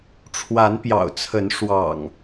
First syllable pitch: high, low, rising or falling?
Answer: rising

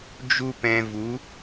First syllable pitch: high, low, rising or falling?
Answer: high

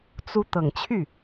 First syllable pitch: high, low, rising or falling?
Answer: rising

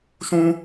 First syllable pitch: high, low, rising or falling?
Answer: high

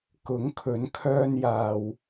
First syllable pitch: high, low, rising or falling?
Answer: rising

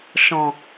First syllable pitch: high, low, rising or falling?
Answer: low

